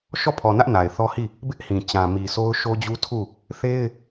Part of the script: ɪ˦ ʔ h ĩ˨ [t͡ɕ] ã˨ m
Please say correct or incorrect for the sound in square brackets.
correct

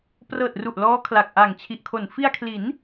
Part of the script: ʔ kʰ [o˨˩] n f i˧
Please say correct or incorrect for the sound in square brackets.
correct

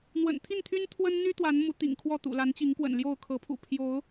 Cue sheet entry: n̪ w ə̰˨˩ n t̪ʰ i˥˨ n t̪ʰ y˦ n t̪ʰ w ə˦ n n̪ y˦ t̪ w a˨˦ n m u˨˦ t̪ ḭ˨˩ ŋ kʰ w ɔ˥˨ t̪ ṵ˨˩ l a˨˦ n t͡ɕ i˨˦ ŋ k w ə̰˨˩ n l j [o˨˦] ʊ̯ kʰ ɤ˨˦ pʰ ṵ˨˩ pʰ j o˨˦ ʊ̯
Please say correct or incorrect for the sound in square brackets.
incorrect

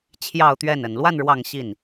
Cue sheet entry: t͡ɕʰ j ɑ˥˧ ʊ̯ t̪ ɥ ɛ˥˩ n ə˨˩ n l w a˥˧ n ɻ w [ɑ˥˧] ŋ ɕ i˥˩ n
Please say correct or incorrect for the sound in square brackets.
correct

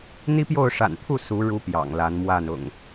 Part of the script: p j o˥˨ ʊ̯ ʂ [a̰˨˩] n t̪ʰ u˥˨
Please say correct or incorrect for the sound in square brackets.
correct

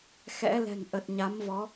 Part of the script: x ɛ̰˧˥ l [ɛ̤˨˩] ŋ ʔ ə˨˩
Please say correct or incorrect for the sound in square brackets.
correct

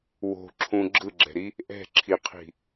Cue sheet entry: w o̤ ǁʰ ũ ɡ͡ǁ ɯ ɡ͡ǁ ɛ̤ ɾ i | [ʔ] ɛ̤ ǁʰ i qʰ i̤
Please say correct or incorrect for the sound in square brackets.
correct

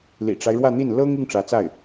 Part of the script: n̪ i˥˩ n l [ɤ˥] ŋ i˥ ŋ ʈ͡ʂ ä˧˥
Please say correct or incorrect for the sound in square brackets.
correct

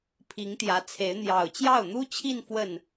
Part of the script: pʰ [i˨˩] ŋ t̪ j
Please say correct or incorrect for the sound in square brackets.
incorrect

